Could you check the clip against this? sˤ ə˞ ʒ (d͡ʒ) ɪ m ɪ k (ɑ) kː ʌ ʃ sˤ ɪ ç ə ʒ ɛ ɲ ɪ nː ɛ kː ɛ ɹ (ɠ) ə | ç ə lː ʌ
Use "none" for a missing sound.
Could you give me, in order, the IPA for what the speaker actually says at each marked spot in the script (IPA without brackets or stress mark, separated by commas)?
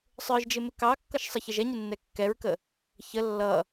d͡ʒ, ɑ, k